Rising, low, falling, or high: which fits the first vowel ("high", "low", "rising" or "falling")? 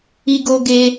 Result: high